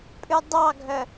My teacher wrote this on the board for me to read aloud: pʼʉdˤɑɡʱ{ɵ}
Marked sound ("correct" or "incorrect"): incorrect